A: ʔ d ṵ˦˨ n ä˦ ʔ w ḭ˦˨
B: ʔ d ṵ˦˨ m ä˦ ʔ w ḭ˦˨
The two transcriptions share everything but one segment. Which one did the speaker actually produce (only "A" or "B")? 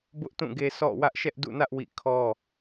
A